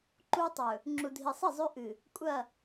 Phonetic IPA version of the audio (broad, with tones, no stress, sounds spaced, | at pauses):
ǃ u˦ tˤ ɵ˨ | ŋ͡ǁ u˨ dʱ i˨ sˤ i˦˨ zˤ ʉ˦ ʔ ɨ˨ | kʷʼ ɐ˦˨